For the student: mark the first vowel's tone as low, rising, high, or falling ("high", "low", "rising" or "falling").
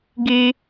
low